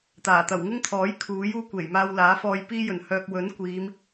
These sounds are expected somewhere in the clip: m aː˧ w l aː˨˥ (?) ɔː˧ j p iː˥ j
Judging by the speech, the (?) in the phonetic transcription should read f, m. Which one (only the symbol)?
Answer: f